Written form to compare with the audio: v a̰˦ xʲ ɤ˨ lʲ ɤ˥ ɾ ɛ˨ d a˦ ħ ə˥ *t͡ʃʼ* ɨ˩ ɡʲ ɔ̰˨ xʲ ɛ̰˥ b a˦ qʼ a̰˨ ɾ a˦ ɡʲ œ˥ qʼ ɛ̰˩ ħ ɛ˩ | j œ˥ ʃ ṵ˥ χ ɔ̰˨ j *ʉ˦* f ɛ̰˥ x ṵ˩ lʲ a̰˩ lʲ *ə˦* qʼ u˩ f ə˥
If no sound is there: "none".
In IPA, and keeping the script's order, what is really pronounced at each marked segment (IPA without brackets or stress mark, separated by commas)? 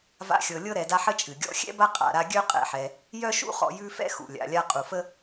t͡ʃʼ, ʉ˦, a˦